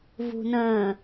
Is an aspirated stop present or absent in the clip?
absent